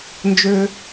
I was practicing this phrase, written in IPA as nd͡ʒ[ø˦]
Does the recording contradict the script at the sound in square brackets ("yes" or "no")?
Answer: no